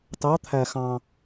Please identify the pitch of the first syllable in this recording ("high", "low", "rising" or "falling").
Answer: rising